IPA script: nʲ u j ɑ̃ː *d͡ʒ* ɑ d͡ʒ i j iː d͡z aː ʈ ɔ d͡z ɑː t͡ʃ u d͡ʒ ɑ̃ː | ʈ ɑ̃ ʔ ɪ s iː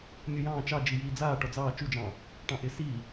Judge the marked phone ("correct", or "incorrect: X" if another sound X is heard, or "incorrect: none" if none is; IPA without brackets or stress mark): incorrect: t͡ʃ